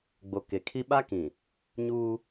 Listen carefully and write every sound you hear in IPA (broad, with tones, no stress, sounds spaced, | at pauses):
ɡ͡b o˨ k e˨ kʰ i˦ ɓ a˦ k ĩ˨ | ɲ uː˦